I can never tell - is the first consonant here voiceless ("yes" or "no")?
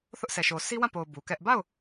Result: yes